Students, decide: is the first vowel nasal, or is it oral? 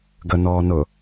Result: oral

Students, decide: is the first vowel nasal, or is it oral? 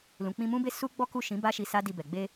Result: nasal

